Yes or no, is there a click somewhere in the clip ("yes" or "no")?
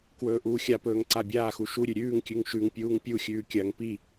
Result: yes